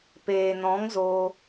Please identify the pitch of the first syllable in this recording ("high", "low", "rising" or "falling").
low